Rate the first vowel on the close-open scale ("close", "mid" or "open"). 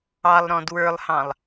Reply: open